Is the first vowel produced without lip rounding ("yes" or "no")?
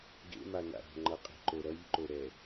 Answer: yes